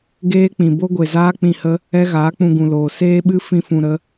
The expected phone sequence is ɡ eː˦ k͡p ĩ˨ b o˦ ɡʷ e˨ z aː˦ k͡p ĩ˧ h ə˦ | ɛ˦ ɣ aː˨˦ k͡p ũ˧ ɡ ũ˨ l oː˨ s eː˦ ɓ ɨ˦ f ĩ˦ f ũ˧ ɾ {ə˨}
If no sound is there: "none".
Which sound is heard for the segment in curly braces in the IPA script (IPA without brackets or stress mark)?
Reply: ə˦